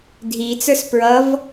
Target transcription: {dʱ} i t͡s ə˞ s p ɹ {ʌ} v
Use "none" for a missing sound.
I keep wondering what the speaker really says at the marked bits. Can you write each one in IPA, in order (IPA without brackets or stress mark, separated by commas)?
dʱ, ʌ